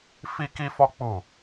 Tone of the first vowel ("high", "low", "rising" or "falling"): high